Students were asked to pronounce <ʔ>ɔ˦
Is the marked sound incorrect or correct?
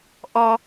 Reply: correct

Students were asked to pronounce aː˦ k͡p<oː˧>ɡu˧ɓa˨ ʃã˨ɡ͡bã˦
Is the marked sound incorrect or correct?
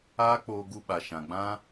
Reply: correct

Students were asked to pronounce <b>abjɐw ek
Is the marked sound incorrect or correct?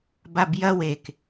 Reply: correct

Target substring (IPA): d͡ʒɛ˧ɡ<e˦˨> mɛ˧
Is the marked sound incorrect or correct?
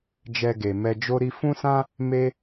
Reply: incorrect: e˨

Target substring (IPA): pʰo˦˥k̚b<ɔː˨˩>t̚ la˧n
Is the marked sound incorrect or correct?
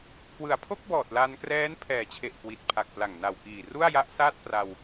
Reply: correct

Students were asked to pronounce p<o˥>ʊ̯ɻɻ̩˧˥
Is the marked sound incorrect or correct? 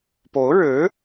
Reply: incorrect: o˧˥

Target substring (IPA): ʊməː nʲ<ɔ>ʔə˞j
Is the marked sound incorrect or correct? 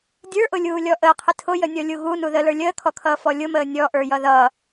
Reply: correct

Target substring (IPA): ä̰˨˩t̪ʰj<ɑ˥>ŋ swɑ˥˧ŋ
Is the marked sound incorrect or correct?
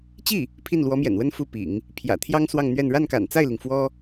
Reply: correct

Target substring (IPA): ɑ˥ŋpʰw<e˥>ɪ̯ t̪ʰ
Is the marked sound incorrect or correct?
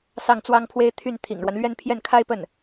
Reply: correct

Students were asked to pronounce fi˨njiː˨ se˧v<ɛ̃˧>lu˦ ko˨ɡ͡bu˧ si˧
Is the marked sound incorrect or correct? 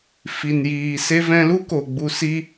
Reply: correct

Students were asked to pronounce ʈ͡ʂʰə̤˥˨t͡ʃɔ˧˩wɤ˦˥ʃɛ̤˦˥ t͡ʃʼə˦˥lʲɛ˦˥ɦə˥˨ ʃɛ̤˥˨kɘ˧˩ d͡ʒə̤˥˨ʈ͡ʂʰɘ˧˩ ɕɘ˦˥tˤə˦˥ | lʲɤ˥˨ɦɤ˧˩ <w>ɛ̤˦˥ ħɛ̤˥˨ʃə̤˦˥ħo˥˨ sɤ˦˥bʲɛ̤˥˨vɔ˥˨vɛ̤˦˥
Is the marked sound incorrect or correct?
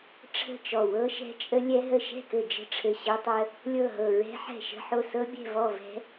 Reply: incorrect: ɹ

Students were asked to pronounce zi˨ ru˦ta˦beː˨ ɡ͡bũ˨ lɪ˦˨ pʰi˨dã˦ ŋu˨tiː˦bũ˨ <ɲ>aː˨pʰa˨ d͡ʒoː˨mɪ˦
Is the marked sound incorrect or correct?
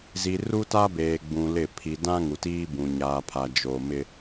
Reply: correct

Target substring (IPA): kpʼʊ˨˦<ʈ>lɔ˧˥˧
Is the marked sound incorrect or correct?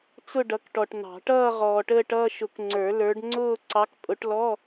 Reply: correct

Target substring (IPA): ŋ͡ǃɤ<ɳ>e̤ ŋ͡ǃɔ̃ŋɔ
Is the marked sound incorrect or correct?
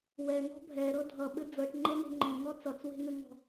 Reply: incorrect: n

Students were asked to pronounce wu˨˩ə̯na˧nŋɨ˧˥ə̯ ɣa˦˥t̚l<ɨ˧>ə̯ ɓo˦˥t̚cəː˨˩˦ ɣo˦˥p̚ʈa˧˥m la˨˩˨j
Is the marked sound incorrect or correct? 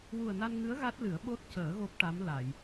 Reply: incorrect: ɨ˨˩˦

